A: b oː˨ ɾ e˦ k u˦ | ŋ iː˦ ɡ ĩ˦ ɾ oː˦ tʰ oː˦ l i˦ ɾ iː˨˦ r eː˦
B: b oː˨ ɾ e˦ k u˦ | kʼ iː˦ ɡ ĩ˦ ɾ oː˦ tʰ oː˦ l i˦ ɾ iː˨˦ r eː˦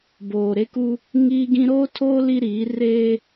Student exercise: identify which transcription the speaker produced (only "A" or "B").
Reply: A